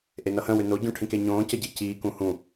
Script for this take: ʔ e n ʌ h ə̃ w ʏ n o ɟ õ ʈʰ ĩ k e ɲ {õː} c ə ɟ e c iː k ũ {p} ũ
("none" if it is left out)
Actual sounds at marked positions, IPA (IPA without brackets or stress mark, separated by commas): õː, h